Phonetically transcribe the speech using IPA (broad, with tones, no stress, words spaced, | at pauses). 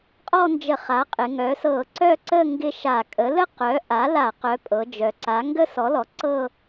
qʼɔ˥˧nd͡ʒə˧˩˧ χa˩˥qʼɪ˩˧ŋœ˩˥ sɤ˧˩˧ǀœ˥˧ǀə˥˧ ŋɡɪ˥˧ ʃa˧˩˧ kʼə˩˥lə˥˧ qœ˩˥ʔa˩˥la˧˩˧ qœ˩˥pʼɤ˩˧ d͡ʒœ˩˧ǀa˩˥ ŋɡə˥˧sɔ˩˥lɔ˩˧ ǀɤ˥˧